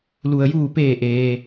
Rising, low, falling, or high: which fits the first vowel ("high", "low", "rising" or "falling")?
low